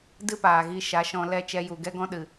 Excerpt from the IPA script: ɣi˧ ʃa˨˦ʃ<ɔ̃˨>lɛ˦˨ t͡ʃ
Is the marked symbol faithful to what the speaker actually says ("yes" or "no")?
no